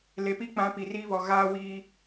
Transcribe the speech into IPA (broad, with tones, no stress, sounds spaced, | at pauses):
l e˨ p i˦ k͡p ã˨˦ p i˨ r iː˦ β ɔ˨ ɣ aː˦ w iː˦